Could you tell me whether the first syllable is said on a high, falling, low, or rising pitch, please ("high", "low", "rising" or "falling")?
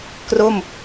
falling